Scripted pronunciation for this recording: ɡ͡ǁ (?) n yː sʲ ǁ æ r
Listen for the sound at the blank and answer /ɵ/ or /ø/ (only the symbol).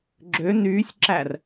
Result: ø